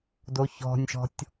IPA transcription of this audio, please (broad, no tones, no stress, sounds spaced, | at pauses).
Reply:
d o ç ɔ̤ nʲ ʃ ɔ̤ tʲ